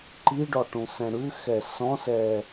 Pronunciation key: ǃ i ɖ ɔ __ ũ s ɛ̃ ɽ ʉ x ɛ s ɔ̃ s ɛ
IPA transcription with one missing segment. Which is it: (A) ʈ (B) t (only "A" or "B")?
A